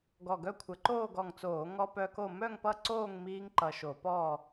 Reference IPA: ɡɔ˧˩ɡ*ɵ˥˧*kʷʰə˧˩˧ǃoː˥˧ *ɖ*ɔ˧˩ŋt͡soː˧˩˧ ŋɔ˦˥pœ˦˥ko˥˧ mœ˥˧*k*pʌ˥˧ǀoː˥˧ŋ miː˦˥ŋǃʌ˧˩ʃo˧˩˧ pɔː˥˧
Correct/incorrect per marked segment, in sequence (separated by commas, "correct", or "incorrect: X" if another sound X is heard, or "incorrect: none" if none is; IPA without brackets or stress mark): incorrect: œ˥˧, incorrect: ɡ, incorrect: ŋ